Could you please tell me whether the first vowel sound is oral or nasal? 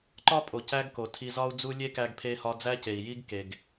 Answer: oral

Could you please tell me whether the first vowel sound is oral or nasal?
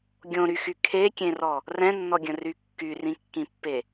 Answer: nasal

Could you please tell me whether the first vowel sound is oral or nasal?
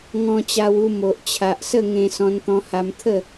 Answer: nasal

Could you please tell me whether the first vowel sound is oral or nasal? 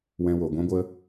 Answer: nasal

